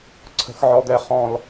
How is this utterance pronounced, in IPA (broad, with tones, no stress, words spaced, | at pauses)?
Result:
ǀʰə̤˨xʕɔ˨d̪ɛ˨ χɔ̃˨l